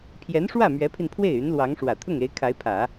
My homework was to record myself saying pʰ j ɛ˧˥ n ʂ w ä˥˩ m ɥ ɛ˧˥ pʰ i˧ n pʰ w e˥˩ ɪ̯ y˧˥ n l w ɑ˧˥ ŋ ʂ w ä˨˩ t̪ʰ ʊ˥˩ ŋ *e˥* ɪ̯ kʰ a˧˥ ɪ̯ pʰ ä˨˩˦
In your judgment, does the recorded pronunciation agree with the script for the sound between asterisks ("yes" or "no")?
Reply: no